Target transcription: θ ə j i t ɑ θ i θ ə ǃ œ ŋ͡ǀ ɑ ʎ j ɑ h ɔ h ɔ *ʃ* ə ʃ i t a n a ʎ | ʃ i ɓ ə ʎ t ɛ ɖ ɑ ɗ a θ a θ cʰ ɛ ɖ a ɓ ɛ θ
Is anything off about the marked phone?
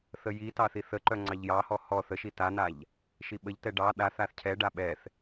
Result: yes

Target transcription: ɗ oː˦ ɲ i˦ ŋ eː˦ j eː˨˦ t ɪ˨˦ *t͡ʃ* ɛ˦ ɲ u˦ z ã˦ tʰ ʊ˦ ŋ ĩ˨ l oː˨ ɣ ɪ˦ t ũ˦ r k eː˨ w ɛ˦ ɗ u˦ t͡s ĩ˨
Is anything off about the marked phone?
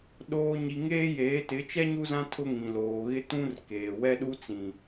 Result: no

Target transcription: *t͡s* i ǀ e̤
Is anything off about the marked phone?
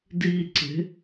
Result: yes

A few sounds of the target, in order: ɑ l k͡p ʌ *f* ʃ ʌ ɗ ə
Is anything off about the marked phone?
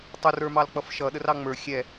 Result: no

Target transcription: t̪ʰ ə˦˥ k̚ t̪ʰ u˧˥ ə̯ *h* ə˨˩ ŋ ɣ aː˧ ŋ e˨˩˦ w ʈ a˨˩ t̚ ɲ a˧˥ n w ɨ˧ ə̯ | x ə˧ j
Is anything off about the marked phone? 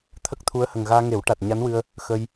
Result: no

